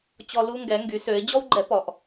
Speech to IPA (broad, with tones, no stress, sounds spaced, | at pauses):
t͡ɕ ɔ˦ l u˦ ŋ ɡ ɛ˨˦ ŋ ɡ y˨˦ s ø˨˦ ɪ̯ d͡ʑ ɔ˦ w ɡ͡ǃ ɛ˨˦ p ɔ˨˦ ʔ